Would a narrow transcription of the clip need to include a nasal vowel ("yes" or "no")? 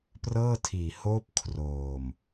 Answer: no